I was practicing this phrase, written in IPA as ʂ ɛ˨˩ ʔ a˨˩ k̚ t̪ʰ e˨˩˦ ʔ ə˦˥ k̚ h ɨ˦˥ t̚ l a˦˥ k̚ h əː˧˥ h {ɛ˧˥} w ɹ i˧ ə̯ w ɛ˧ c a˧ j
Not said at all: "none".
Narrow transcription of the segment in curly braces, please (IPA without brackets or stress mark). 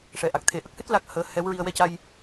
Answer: ɛ˧˥